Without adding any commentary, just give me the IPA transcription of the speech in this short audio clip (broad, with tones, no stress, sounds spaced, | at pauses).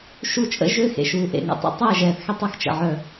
ʃ u˦ t͡ʃʼ ə̰˦ ʒ ø˦ x ḛ˨ ʃ uː˨ ʔ ḛ˨ ŋ ə̰˨ tˤ ḛ˦ tˤ ɛː˦˨ ʒ ɛː˨ θ x ɛ˦ tˤ œ˦ x t͡ʃ ə̰˨ ʕ œ˦˨